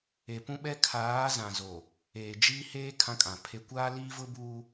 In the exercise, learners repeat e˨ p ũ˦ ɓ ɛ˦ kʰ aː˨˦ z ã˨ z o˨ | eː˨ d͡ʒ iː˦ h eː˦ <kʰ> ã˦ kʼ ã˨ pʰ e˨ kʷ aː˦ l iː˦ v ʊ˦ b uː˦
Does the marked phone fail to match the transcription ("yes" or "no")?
no